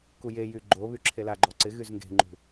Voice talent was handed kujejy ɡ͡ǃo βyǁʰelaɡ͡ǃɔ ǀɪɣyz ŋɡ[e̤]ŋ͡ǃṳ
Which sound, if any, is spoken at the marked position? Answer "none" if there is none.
e̤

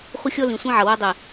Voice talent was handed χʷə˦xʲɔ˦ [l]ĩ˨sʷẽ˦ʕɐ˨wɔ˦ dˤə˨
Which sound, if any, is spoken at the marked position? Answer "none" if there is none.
l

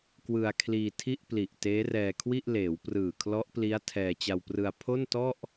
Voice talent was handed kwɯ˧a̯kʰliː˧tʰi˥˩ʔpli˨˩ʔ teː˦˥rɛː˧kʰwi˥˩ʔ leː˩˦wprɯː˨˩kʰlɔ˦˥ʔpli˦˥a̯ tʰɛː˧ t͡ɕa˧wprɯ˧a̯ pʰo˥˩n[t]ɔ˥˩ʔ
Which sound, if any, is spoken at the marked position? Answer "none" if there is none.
t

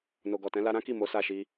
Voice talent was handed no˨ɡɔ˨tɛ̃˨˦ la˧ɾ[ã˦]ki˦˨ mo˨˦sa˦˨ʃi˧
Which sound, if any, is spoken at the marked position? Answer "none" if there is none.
ã˦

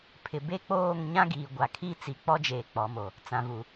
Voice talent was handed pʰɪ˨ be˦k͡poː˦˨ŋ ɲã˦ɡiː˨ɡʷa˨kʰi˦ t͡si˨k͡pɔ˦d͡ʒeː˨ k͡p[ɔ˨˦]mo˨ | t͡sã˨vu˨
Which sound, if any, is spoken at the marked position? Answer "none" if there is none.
ɔ˨˦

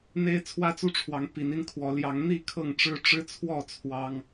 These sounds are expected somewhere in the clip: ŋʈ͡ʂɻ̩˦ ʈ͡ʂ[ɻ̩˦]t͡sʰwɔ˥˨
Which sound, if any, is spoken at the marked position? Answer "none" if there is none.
ɻ̩˦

